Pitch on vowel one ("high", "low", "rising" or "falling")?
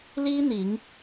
high